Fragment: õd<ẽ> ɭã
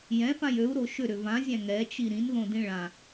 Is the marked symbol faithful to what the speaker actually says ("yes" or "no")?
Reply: no